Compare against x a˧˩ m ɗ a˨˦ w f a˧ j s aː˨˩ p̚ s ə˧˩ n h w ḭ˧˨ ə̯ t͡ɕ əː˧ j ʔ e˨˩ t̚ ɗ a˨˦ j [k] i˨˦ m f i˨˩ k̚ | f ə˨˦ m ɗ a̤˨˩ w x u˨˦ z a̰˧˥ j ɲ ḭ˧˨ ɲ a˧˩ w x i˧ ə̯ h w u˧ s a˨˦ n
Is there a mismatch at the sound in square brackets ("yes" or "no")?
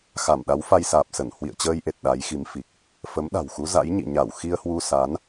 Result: yes